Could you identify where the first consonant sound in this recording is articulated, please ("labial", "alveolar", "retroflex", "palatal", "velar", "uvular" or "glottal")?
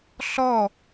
alveolar